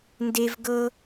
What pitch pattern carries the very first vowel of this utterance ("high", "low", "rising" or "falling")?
high